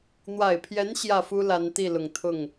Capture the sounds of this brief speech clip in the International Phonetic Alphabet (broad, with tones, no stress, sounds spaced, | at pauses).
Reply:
n̪ w a˨˩ ɪ̯ pʰ j ɛ˧˥ n ɕ j ä˥˩ f u˥ l a˧˥ n t̪ i˥˩ l ʊ˨˩ ŋ t̪ʰ ʊ˥˩ ŋ